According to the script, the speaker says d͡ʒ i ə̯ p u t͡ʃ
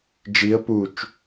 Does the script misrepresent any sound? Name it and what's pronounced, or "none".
none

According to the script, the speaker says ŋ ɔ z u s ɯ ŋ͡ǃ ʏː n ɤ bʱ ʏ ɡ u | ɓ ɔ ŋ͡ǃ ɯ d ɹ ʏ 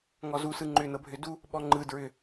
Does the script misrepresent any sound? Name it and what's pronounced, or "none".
ɡ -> d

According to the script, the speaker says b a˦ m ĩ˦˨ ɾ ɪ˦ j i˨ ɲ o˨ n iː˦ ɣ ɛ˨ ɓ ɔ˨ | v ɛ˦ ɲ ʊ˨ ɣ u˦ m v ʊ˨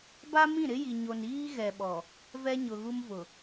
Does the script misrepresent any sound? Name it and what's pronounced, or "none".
none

